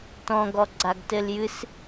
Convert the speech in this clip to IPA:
t ɔ̃ ɡ ɔ ɡ͡ǀ a ɡ t ɘ l j ɨ s

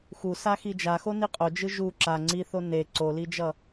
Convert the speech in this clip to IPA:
x u s a x i d͡ʒ a x o n i qʼ o d͡ʒ ɯ ʒ u ǁ a ŋ͡ǀ i θ o n e ǀ o l i d͡ʒ ʌ

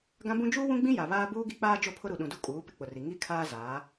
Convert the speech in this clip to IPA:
ɡ ã˦ b ũ˦ d͡ʒ uː˦ w ũ˦ ɡ͡b ĩ˦ j a˨ β aː˦ b uː˦ ɡ i˦ k͡p aː˦ d͡ʒ o˦˨ pʰ ʊ˦ ɾ u˨ ɗ ũ˨ d u˦ kʼ uː˨˦ p ɪ˦ k͡p ʊ˨ r i˨ ŋ i˦ kʰ aː˦ z aː˨˦

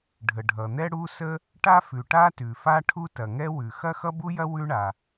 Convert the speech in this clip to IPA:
ɖʱ ə˩ ɖʱ ʌ˩ n̪ ɛ˥ ɽ u˥ s ə˥ | ʈ a˥ f ʉ˩ ʈ a˥ t ʉ˩ f a˥ ʈʰ u˥ t ɐ˩ ŋ ɛ˥ w ʉ˩ x ɐ˥ x ʌ˥ b u˥ j ɐ˥ w ʉ˥ ɳ a˩

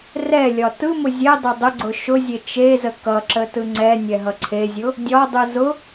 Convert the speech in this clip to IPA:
r ɛ lʲ ɒ t ɯ m ʊ zʲ ɛ dˤ ɛ dˤ ə ɡ͡ǀ ʊ ʃ ʊ zʲ e t͡ʃ e z ə k ʌ ǁ ə t ɯ ŋ͡ǀ ɛ nʲ ɛ ɦ ʌ ǀʰ e zʲ ʊ | dʲ ɒ dˤ ɯ z ʊ

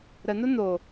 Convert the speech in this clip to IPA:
ɾ ə n̪ ʊ n̪ o

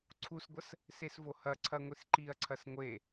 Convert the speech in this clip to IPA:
ǀʰ u s ɡʷ ɐ s | s e s v o h ɐ ǀʰ ɐ ŋʷ i s ǃ i ɐ̯ ǀʰ ɐ s ŋʷ e

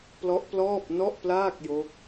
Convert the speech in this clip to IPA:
p l ɔ˦˥ ʔ p l ɔː˥˩ p̚ n ɔ˥˩ ʔ p l aː˥˩ k̚ j o˦˥ k̚

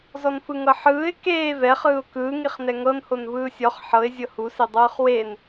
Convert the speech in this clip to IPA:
z ɔ n f ɯ ŋ ɤ ħ ɯː ɪ̯ k eː v ɛ χ ɯː ʊ̯ k ɯː ŋ i χ n ɛ ŋ ɤ n h o n v ɯː sʲ ɔ χ ħ ɤ ɪ̯ zʲ ɤ h u s e dˤ ɯː χ w e n

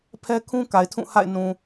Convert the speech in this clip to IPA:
pʰ ɛ˦ kʰ ũ˦ k a˨ ɪ̯ tʰ ũ˦˨ h a̰˦˨ ɪ̯ n ũ˨

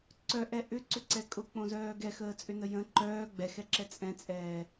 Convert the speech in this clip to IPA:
ǀ œ ʔ ɛ ʔ ʏ ǀ ʏ ǀ ɛ kʼ ʊ k͡p õ z œː ɡ ɛ x əː t͡sʼ ʏ n ə j ə̃ ǃ œː ɡ͡b ɛ x ɛ ǁ ɛ t͡sʼ ɛ̃ t͡sʼ ɛː

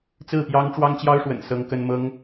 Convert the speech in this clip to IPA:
t͡s ɹ̩˥˩ p j ɑ˥ ŋ ʈ͡ʂ w ɑ˥ ŋ t͡ɕ j ɑ˥ ʊ̯ ʂ w ə̰˨˩ n s ɤ˥ ŋ k ə˥ n m ɤ˥ ŋ

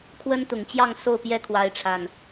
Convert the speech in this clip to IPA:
kʰ w ə˦ n t̪ ʊ˨˩ ŋ t͡ɕ j ɑ˥˨ ŋ s o˥˨ ʊ̯ p j ɛ˦ kʰ w a˨˦ ɪ̯ ʈ͡ʂʰ a˨˩ n

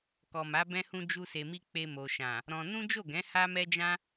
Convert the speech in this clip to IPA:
k ɔ˨ m a˨˦ b ɛ̃˧ h ũ˧ d͡ʒ u˧ s e˨ m i˧ k͡p e˧ m o˨ ʃ ã˨ | ɾ ɔ̃˧ n ũ˦ d͡ʒ o˦˨ ɡ ɛ̃˨˦ h a˦ m ɛ˦ d͡ʒ ã˦

